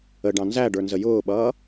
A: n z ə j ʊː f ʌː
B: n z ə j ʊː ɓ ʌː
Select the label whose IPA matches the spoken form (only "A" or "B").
B